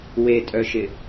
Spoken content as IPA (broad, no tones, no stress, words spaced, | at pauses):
wetʼœʃɪ